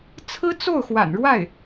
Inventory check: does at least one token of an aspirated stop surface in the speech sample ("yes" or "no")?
yes